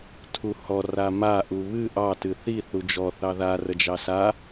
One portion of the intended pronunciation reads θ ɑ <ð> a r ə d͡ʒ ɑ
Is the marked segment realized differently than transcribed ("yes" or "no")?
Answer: no